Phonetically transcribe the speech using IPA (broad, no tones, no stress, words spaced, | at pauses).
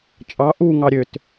t͡ʃʼɑ ʔuŋɑ ɾʲøt